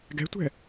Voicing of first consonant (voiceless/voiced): voiced